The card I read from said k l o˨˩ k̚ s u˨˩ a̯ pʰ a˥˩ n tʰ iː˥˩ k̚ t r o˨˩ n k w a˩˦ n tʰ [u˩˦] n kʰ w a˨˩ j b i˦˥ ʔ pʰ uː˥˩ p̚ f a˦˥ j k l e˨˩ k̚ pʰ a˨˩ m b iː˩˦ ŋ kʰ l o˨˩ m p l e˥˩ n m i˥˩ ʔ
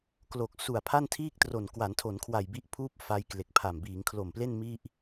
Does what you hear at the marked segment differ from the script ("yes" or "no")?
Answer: yes